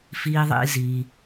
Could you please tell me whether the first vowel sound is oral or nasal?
oral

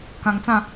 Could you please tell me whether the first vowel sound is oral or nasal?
nasal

